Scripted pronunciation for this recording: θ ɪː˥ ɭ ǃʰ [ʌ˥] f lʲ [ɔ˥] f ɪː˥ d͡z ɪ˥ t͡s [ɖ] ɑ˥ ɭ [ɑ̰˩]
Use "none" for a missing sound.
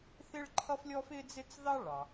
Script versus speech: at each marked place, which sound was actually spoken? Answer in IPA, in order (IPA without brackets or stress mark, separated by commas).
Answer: ʌ˥, ɔ˥, ð, ɑ˩